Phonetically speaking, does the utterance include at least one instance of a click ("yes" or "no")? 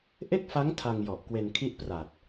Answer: no